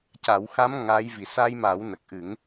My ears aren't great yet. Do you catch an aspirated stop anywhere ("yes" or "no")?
no